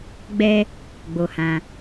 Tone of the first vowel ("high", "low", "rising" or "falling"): high